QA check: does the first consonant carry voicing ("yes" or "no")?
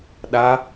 yes